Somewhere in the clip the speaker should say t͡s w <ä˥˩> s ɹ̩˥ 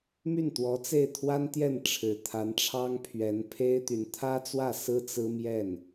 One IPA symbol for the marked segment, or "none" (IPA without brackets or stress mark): ä˥˩